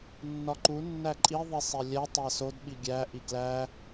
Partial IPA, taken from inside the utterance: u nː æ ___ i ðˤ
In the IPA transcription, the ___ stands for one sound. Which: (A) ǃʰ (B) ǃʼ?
B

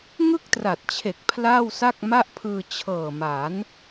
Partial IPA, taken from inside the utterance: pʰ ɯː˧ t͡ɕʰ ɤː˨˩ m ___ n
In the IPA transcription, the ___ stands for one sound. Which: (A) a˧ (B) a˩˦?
B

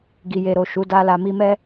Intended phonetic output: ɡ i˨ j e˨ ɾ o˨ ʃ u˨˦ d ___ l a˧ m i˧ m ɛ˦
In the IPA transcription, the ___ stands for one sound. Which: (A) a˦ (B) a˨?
A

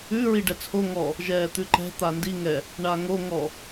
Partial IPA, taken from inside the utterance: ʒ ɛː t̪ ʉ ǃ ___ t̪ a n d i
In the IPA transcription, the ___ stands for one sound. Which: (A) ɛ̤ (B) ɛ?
A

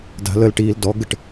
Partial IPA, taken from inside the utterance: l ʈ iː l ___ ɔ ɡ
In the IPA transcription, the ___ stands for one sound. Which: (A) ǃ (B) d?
B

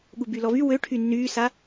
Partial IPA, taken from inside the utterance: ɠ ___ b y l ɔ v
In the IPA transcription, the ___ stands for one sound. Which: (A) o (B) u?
B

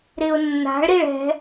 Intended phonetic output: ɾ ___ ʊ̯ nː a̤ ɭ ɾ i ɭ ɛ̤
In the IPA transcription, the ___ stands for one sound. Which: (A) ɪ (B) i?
A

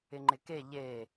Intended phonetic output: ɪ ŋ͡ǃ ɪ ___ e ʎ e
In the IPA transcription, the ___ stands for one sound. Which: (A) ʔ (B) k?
B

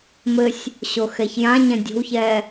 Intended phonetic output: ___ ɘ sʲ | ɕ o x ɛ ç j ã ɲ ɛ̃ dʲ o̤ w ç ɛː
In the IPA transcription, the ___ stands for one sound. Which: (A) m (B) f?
A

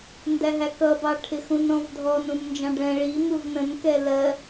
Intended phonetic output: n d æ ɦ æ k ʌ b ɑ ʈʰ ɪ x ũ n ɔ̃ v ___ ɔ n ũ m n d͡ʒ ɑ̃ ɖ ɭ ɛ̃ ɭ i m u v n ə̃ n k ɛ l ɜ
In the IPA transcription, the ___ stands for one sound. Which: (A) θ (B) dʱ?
B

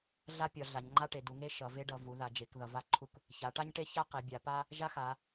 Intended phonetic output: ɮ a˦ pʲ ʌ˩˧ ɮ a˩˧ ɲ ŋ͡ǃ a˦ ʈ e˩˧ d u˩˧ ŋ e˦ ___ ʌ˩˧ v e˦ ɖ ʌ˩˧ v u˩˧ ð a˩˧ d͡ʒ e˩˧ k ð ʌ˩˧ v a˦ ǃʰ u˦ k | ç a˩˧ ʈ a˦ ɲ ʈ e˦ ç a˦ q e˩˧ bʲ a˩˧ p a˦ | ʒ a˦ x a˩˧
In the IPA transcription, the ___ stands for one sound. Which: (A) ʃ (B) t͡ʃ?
A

